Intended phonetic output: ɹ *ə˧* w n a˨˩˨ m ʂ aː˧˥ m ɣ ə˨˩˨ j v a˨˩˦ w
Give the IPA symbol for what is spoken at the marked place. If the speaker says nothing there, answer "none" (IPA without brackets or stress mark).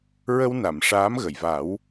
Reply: ə˧